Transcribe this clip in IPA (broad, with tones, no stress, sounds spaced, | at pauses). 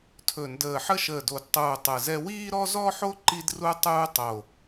tʰ ɵ˧˩ n d əː˧˩ ħ ə˥ ʃ əː˧˩ d o˧˩ d tˤ uː˧˩ tˤ ɯ˧˩ z ɛ˥ w iː˥ ɾ ɔ˥ z ɔ˥ ħ o˥ ǃ i˥ d r u˥ tˤ uː˥ tˤ o˧˩